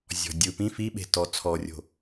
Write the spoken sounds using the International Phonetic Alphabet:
zʲɔ̤dʲɯ pĩ fiɓe̤ tɔ t͡sʰɔrʲo̤

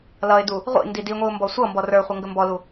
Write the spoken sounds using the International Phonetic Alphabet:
lʌɪ̯du | ʁʷḭ ndidiŋʷiʊ̯ mbɔsʷʌmbɔ rə˞χʷə ŋɡəmbɔlu

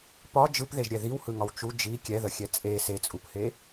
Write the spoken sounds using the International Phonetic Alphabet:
pɒ d͡ʒɯpðeʒɾʲɛ ðiwhɯŋɒw t͡ʃu d͡ʒi kʲɛðəxʲɛ t͡sʼe set͡sʼuphe

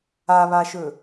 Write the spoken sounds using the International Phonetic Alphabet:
aβaʃɵ

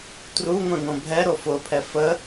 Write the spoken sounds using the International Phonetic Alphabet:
truŋʷɛ̃ŋõ bʱɛ ɾofʊpʰɛ fə

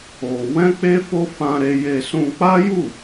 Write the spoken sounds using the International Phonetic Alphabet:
o˧ wɛ̃˦k͡pe˦fo˦ fã˧ɾe˧je˧ sũ˧k͡pa˦ju˦˨

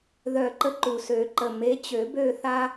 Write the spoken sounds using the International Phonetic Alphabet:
ðœ˨˩ǃə˨˦ ǃu˨˩sø˨˩˦ ǃə˨˩me˨˦t͡ɕø˨˩˦ bø˥˧θa˥

